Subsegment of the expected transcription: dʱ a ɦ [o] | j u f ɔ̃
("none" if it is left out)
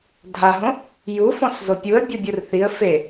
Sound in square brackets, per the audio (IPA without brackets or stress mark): õ